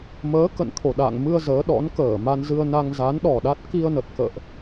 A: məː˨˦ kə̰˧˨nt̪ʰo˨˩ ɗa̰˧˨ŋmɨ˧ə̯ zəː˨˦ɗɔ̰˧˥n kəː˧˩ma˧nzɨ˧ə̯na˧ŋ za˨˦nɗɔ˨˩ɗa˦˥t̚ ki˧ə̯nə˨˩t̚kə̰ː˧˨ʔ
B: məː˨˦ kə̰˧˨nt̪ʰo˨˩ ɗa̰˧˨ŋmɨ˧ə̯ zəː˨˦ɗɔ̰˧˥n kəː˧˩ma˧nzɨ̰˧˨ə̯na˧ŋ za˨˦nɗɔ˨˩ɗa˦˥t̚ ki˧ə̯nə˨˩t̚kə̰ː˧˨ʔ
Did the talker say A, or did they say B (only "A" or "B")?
A